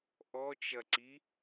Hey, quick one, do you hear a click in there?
yes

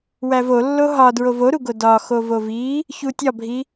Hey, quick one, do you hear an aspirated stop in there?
no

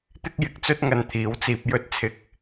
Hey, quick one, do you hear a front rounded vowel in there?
no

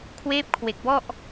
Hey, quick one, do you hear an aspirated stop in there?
yes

